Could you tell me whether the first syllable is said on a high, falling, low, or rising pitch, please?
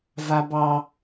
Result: high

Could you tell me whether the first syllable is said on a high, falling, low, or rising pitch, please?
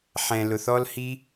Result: low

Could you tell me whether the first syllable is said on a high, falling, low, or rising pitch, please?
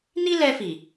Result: high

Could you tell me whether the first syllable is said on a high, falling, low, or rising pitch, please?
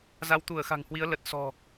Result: rising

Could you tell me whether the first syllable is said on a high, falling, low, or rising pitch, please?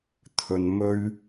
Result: low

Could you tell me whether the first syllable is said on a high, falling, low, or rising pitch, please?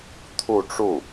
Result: falling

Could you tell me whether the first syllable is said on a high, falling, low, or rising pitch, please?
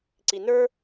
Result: low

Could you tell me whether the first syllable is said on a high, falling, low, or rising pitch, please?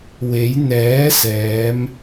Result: rising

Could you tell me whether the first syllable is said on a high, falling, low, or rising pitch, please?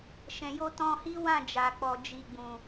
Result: low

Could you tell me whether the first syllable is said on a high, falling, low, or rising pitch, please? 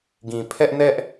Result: low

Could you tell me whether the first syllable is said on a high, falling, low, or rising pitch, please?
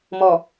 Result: low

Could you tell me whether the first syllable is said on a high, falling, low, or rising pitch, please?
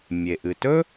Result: low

